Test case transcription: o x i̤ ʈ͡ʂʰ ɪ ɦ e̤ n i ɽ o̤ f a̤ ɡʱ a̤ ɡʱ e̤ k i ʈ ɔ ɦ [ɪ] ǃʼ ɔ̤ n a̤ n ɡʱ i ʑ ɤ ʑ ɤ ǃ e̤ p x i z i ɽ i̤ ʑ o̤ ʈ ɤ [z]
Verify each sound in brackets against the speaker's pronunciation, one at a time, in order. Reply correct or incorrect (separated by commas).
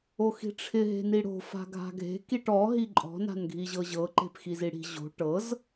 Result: incorrect, correct